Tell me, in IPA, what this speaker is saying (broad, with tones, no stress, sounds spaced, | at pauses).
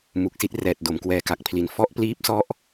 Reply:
m u˨˩ k̚ s i˥˩ t̚ r ɛː˨˩ t̚ d o˩˦ m k w ɛː˨˩ k a˨˩ k̚ pʰ l i˩˦ n f ɔ˦˥ ʔ p l iː˦˥ p̚ s ɔ˦˥ ʔ